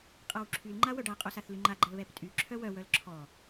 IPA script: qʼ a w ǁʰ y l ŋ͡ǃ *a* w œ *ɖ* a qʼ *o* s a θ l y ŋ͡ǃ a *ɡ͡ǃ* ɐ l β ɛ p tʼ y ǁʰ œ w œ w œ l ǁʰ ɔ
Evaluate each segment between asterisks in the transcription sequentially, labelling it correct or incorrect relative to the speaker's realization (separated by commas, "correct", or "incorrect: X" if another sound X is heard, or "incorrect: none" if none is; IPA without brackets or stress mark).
correct, correct, correct, correct